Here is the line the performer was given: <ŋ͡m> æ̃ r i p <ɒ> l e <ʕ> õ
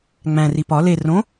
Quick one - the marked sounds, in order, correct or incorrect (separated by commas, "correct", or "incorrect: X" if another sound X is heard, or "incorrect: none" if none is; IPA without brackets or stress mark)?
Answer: correct, correct, incorrect: r